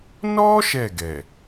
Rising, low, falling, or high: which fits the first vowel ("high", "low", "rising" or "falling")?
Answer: high